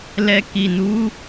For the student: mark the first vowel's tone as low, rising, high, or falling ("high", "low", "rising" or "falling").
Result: low